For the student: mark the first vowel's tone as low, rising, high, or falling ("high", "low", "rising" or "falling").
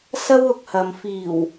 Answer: high